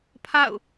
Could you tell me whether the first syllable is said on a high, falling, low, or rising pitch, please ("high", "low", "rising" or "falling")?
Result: falling